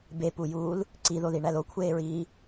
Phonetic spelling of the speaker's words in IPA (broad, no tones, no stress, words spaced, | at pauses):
bepujuːl | ǀiðoðiɳæl okʷʰeːɹiː